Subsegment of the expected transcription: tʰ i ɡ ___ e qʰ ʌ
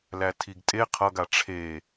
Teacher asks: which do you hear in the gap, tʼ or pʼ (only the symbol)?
tʼ